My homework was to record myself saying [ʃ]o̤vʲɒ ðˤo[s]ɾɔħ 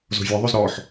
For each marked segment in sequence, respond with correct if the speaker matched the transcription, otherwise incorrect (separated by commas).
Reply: incorrect, incorrect